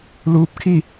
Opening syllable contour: rising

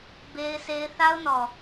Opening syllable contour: high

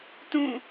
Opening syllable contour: falling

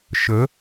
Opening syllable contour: rising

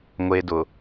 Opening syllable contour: low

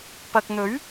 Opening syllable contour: low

